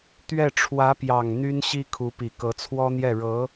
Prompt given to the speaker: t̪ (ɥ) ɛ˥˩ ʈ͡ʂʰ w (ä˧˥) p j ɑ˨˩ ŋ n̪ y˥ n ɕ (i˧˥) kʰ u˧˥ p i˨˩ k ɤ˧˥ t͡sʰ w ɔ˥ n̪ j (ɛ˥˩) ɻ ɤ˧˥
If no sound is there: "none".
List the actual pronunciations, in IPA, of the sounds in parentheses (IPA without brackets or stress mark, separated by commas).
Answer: ɥ, ä˧˥, i˥, ɛ˥˩